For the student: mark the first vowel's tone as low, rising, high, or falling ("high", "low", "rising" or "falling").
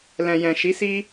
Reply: low